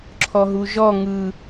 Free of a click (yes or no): no